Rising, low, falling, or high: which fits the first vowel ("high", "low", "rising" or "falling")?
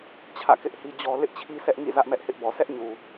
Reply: falling